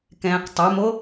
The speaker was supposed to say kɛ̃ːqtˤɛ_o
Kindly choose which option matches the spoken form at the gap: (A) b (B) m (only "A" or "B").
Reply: B